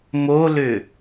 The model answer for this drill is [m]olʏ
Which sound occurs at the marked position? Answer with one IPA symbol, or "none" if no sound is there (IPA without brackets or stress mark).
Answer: m